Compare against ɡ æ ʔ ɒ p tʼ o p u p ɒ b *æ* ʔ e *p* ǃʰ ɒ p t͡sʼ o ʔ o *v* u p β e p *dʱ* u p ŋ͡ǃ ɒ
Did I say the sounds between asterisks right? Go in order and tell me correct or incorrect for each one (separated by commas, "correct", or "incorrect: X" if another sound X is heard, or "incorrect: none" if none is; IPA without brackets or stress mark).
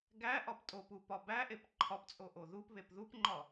correct, correct, incorrect: ð, incorrect: ð